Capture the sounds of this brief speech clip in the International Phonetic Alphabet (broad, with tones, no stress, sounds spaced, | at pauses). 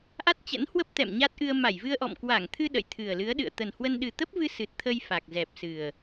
ʔ a˦˥ t̚ t͡ɕ ə̰˧˥ n h w ə˦˥ p̚ t̪ ɛ̰˧˨ m ɲ a˦˥ t̚ ʔ ɨ˧ ə̯ m a˧˩ j v ɨ˧ ə̯ ʔ ɔ̰˧˨ m k w a˧˩ ŋ t̪ʰ ɨ˧ ɗ ə̰˧˨ j t̪ʰ ɨ˨˩ ə̯ l ɨ˨˦ ə̯ ɗ ɨ̰˧˨ ə̯ t̪ ə˨˩ n h w ə˧ n ɗ ɨ˨˩ t̪ ə˦˥ p̚ v ɨ˧ s ɨ˨˩ t̚ t̪ʰ ə˧ j f a˨˩ k̚ z ɛ˨˩ p̚ s ɨ˨˩ ə̯